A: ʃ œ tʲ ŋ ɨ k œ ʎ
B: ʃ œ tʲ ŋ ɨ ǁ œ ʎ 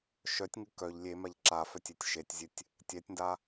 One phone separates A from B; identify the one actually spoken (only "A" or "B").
A